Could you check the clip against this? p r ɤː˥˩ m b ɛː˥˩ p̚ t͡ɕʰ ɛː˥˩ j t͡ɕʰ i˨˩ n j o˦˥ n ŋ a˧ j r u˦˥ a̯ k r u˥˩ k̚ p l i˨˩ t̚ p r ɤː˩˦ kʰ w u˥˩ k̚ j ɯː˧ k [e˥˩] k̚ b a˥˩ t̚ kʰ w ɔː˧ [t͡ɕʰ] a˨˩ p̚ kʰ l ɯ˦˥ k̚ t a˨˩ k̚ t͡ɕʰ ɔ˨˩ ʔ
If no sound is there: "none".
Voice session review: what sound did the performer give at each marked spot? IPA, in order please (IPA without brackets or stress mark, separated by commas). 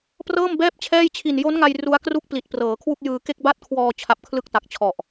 e˥˩, t͡ɕʰ